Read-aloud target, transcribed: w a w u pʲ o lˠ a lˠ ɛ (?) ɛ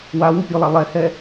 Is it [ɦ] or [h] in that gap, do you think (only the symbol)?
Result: h